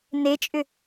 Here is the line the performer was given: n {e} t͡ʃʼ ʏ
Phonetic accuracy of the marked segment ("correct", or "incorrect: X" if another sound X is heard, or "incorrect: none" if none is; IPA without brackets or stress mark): correct